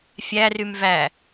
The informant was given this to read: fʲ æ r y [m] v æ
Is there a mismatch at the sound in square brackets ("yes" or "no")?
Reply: no